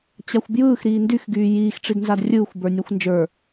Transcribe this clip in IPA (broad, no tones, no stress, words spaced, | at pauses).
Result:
t͡ɕaxʷbjɯːx ɾiːndyx ɡyːjiːx ʈ͡ʂidnzadrʲɯːxʷ bə˞nʲaxʷnd͡ʒə˞